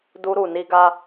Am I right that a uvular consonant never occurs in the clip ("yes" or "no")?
yes